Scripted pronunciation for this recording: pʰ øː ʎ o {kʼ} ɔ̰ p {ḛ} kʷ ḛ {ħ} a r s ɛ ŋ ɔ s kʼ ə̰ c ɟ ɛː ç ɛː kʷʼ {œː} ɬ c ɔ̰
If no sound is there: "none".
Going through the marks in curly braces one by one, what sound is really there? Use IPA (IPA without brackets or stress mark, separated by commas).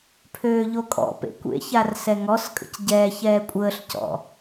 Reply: kʼ, ḛ, ç, əː